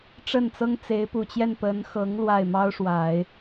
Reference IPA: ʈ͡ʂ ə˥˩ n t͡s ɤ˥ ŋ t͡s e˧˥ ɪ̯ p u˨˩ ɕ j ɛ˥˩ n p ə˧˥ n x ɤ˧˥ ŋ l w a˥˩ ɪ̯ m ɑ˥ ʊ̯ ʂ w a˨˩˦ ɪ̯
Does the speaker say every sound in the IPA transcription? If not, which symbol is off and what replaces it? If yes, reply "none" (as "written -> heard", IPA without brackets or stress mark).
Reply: ɕ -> t͡ɕ